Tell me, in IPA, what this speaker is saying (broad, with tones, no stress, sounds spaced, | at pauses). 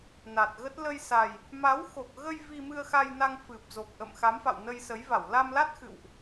n a˨˩ t̚ ɣ ə˦˥ t̚ l ə˧ j s a˨˩ j | m a˨˦ w x o˨˩ k̚ ɣ ə˧ j v i˧ m ɨ˧ ə̯ x a˧ j n a˧ ŋ f ɨ˨˩ p̚ z o˨˩ k̚ ʔ ə̰˧˨ m x a˨˦ m f a̰˧˨ w n ə˧ j s ə˨˦ j v a˧˩ w l a˧ m l a˦˥ t̚ x ɨ̰˧˨ w ʔ